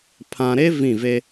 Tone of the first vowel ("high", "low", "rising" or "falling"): low